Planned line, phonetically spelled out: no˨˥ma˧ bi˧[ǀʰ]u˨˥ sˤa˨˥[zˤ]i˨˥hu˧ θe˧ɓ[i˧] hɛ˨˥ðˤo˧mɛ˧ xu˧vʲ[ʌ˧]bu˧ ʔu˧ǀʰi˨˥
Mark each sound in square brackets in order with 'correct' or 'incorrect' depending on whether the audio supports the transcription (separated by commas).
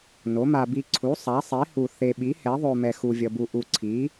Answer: correct, incorrect, incorrect, correct